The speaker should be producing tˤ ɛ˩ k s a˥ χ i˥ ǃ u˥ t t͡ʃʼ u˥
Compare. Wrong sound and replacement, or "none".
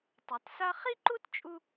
k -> t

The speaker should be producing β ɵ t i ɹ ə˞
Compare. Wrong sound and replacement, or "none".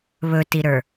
ɹ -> ɾ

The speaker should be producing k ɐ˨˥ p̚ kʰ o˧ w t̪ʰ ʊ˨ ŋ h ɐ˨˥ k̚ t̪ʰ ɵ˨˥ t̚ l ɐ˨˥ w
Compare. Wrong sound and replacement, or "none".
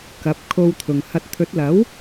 k̚ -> t̚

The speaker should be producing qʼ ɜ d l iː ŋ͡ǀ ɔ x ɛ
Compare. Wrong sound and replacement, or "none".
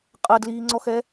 none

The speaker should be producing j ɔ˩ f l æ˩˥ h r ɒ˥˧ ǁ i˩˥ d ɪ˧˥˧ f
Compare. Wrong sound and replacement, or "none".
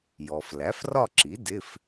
h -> f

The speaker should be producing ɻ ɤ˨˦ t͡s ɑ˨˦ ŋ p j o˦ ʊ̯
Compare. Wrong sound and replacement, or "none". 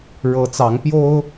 none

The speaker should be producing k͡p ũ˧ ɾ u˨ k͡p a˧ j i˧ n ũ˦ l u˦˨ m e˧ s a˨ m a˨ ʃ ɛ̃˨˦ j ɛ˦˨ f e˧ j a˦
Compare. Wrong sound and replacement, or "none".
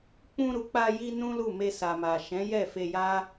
i˧ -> i˦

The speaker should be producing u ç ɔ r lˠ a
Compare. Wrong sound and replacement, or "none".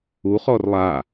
ç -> χ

